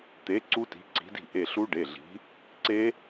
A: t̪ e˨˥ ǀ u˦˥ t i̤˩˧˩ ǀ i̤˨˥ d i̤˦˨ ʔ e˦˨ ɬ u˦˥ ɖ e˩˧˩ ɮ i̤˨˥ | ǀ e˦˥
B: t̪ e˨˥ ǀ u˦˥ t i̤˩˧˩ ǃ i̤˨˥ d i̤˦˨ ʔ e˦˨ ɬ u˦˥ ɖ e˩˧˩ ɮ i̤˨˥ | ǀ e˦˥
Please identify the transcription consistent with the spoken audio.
A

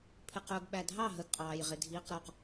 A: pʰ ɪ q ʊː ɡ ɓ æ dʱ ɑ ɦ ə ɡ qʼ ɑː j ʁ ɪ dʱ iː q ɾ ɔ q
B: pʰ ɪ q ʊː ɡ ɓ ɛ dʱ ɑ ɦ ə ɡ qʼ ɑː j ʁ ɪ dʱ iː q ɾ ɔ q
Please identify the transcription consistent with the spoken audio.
A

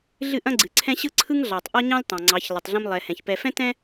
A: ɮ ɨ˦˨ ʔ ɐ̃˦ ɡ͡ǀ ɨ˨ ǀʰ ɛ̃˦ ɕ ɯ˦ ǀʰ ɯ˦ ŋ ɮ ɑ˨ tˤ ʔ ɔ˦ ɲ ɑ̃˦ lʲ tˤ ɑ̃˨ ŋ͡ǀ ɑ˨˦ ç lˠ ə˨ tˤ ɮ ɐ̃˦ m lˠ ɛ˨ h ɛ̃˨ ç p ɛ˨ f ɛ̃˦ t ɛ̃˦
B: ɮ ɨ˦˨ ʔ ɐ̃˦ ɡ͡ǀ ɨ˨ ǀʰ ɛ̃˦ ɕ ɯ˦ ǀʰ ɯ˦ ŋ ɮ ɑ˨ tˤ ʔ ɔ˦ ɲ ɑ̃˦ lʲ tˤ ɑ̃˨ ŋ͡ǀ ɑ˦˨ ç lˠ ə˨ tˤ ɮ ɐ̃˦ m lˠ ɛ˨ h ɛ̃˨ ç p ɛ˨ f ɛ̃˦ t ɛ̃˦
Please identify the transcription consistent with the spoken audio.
A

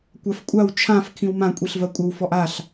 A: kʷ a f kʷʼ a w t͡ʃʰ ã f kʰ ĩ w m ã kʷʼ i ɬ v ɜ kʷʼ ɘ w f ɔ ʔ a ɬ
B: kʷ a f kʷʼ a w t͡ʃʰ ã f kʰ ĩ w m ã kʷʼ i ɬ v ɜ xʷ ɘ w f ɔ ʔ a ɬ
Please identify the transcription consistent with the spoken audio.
A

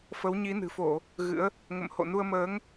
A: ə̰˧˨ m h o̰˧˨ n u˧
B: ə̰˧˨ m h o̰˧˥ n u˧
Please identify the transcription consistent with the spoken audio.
A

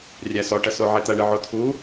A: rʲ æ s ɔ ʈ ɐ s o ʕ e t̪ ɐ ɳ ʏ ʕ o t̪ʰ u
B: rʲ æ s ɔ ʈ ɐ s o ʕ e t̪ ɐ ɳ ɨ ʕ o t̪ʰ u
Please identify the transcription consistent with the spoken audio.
B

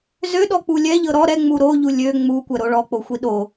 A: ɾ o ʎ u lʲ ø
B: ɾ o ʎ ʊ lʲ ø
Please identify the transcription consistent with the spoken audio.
A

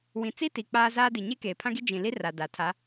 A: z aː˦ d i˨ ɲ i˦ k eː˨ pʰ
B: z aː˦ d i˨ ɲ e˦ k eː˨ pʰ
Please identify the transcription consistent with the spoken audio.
B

